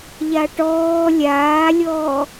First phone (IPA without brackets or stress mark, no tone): ʎ